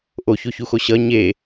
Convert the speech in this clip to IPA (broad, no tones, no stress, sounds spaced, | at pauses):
ʔ o ç o ç u x o ɕ ʌ ɲ e